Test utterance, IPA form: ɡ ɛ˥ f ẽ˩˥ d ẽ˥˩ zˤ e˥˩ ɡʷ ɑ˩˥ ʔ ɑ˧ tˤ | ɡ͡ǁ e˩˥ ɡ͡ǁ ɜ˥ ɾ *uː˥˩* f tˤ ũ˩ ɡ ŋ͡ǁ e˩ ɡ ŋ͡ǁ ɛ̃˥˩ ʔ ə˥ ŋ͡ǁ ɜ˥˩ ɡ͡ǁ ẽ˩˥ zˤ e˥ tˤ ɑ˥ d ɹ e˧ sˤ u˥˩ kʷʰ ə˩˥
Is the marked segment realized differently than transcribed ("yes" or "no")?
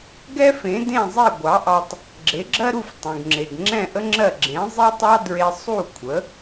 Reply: yes